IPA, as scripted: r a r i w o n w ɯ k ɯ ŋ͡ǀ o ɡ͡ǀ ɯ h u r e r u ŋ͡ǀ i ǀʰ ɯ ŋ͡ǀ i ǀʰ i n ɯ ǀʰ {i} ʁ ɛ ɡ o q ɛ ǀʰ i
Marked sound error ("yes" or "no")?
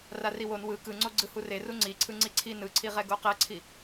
no